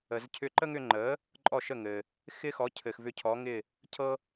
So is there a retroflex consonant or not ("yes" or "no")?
no